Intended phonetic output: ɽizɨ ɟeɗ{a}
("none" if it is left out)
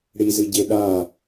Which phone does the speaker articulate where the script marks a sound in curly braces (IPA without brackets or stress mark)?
a